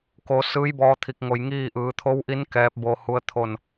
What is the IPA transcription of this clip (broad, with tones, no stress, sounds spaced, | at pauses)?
k o˩˧ s ɯː˧˥ j b ɔː˧ t̪ʰ i˧˩ k̚ ŋ o˧˩ j ŋ iː˥˨ ʔ ɯː˩˧ t̪ʰ o˧˥ w ʔ i˧˥ n k ɛː˧˥ p̚ b o˧ h u˧˥ ə̯ t̪ʰ o˥˨ n